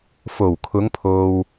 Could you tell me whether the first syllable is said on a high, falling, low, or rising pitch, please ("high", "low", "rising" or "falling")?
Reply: low